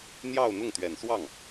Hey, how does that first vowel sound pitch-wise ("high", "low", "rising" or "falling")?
falling